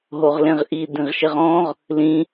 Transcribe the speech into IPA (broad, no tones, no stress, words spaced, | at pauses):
ɦoʁlẽʁʔi dĩʁʃɪʁɔ̃ʁ | lĩ